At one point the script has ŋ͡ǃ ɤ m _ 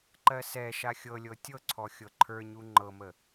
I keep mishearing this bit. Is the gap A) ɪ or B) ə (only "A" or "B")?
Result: B